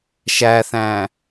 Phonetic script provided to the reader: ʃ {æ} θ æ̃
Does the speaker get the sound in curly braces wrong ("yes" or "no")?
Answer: no